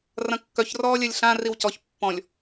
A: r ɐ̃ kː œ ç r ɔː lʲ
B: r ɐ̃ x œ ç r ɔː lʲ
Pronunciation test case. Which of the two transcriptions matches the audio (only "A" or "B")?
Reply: A